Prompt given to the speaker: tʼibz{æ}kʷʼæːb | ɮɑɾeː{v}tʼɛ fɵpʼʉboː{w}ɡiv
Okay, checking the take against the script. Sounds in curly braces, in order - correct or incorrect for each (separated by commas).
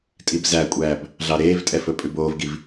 correct, correct, incorrect